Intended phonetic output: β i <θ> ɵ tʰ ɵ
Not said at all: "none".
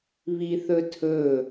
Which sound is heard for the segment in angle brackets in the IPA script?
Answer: θ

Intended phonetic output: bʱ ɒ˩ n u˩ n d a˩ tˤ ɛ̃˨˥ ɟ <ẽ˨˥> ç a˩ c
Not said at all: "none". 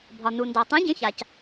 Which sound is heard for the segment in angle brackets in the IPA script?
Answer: ẽ˨˥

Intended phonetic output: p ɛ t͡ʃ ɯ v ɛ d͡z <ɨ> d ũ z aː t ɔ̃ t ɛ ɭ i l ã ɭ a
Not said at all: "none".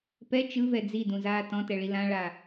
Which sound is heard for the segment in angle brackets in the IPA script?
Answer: i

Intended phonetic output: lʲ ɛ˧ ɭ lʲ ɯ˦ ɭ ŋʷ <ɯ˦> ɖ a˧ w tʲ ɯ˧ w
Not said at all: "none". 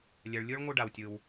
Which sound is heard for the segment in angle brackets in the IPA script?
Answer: ɯ˦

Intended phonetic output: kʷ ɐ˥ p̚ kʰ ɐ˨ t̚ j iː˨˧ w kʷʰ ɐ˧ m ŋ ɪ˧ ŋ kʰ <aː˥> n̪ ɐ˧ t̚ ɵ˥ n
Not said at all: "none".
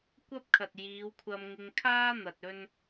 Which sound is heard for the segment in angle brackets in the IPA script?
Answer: aː˥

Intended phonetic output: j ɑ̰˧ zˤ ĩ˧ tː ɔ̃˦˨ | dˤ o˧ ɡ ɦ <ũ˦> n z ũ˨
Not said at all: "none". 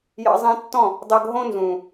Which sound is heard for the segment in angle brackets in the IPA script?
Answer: õ˦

